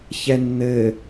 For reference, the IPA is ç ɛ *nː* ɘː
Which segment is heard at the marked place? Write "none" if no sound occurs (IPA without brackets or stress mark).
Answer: nː